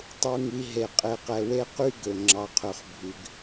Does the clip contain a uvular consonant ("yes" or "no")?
yes